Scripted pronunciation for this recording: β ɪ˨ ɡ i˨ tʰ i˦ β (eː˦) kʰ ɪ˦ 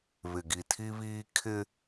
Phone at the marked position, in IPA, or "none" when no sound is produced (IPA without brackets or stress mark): iː˦